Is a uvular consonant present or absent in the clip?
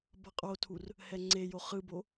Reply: present